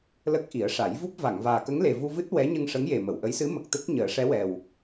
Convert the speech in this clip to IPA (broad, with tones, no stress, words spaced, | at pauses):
lə˦˥k̚ʔi˨˩˦ə̯ ʂa˨˩˦jvu˦˥p̚ va˨˩˨ŋvaː˨˩kə˧˥ŋ le˨˩vu˧vɨ˦˥t̚ wɛ˧˥ɲə˧ŋʂə˧˥ŋje˨˩ mə˨˩˨wʔə˧˥jsɨ˧˥ mə˨˩k̚t̪ə˦˥k̚ ɲəː˨˩˦ʂɛ˧˥wɛ˨˩w